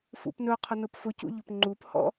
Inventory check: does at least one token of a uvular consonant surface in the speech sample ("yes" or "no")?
yes